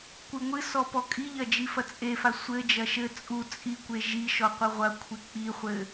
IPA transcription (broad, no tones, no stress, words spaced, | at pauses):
kʷɨŋʷɨsɔ pɔkʼiʎɐ d͡ʒifɐt͡sʼefa sʷɘd͡ʒɐ ʃɘ t͡sʼu t͡sʼikʷe ʒiʃɔ qʷɘʁʷɐkʷʰe k͡piχʷɘ